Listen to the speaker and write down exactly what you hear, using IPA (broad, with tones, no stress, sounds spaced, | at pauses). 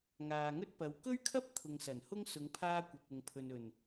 ŋ aː˨ ŋ ɵ˥ t̚ p ɐ˨˧ w k ɵ˥ ɥ kʰ ɐ˥ p̚ t̪ʰ ʊ˨ ŋ s ɐ˨˩ n h ʊ˥ ŋ s ʊ˨˧ ŋ pʰ aː˧ kʷ ɐ˨ p̚ ʊ˨ ŋ pʰ ɵ˨ n ɵ˨˩ n